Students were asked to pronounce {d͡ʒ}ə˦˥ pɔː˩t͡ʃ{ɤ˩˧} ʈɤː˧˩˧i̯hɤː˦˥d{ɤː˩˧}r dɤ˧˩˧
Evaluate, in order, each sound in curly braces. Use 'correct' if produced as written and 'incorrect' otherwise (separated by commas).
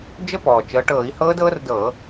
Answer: correct, correct, incorrect